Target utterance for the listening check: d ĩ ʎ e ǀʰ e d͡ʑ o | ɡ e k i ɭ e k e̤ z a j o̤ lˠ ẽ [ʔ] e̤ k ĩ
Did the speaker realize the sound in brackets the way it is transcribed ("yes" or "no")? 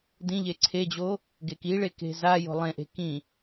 yes